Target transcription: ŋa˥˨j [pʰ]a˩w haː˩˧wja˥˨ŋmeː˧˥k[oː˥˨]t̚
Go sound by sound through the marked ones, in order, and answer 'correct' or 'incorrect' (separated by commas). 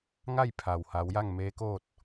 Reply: correct, correct